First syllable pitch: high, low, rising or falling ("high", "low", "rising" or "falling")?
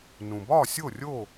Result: low